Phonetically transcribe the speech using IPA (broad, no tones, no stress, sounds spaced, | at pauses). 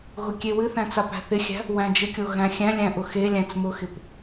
ɣ ʊ kʲ e w ɨ θ æ̃ t͡s a p æ̤ θ ɪ xʲ æ̤ | w æ̃ d͡ʒ ɪ kʲ o ɣ æ̃ xʲ æ̃ lʲ æ̃ ʔ ʊ x e lʲ æ̃ t͡s m ʊ x ɪ p